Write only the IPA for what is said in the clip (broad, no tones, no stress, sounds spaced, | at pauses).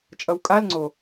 t͡ʃʼ ʌ w kʼ a l ŋ͡ǀ o